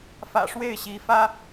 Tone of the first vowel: low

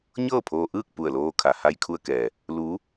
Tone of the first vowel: falling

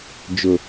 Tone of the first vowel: low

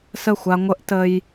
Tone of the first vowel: falling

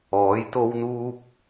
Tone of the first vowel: rising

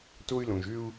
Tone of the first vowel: high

